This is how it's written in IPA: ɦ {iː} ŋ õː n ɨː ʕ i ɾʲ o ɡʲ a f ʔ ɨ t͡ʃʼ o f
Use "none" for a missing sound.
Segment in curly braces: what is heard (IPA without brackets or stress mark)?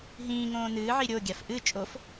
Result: ĩː